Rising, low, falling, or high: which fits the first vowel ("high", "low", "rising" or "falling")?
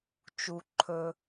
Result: low